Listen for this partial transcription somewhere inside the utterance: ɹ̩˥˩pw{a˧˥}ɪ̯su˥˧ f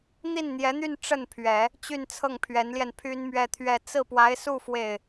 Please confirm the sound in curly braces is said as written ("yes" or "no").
yes